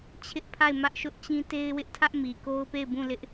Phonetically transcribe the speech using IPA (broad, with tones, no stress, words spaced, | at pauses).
t͡ɕʰɪ˦ʔpʰa˦˨ɪ̯ mä˦ʔʃʊ˦ʔt͡ɕĩ˦ te˦ɪ̯wɪ˦ʔtʰä˦ʔ mi˨ko˦ʊ̯pe˦˨ɪ̯ bũ˦˨lɪ˦ʔ